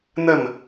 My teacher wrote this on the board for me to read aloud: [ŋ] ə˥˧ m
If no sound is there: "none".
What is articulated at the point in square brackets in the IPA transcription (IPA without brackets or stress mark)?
n̪